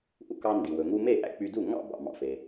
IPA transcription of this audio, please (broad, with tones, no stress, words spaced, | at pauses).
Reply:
ʔṵ˧kɑ˧ ndi˩ wɵ˩ŋu˧me˥˩ ʔæ̰˥k͡py˧du˥˩ ŋɑ̰˥˩bɑ̰˩ mɑ̰˩fe˩